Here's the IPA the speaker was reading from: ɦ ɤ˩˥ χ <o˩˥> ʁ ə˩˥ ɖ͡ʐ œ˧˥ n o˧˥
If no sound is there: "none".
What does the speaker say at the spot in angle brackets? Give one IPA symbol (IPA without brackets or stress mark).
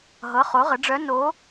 o˩˥